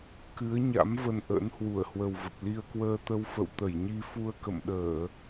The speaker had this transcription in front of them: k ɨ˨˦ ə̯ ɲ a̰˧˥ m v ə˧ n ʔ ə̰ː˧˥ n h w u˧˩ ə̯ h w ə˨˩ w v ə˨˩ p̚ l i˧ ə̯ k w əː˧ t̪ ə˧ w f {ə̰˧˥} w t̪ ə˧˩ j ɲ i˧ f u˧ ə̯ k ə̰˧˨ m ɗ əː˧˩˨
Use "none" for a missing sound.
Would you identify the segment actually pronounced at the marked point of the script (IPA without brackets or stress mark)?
ə̰˧˨